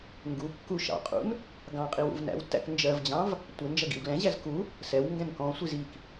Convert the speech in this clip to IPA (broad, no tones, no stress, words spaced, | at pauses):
ŋɡu kːu ʃɑ̰qʼṵn | ɡɑ̃qʼiw ṵvnæ̰wtːæ̰k nd͡ʒɜvd͡ʑɑ̃v | tʷɪ nd͡ʒʌɡḭwɡlɛ̃ʑæz ku | sɛw ŋɡɛ̃nkɔ̃sʷiz ik